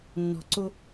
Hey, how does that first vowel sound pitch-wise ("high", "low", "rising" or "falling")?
low